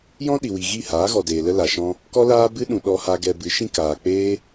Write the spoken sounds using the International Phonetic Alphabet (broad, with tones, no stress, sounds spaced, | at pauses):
j ɔ̃˦ ɗ i˨ w i˨ ɣ i˦˨ h aː˨˦ ɣ ɔ˨ d eː˨ l ə˦ l a˨ ʃ ɔ̃˦ | k ɔ˦ l aː˦ b ɨ˦ ɗ ũ˨ ɗ ɔ˧ h a˧ ɡ ɛ˧ b ɨ˨˦ ʃ ĩ˦ k aː˨ k͡p eː˦